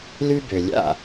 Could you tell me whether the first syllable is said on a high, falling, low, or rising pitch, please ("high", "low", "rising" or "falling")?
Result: high